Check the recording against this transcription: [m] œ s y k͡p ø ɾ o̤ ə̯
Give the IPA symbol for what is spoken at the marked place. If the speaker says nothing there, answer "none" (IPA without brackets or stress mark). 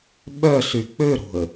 ɓ